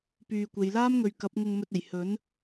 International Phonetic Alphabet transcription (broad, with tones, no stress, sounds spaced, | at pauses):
p yː˧ kʷ e˨˧ j l aː˥ m ŋ ɵ˨ ɥ k ɐ˨˥ p̚ ŋ ʊ˧ ŋ m ɵ˧ t̚ e˨˩ j h ɵ˨˥ n